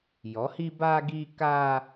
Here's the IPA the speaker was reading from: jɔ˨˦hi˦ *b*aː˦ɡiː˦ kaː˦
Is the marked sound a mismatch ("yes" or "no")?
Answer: no